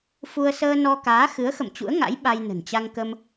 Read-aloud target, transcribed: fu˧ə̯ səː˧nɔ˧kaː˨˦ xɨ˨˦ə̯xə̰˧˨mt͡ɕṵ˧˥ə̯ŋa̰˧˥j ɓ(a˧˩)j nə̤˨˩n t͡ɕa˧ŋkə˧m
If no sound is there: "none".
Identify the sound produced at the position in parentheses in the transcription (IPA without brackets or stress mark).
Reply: a˧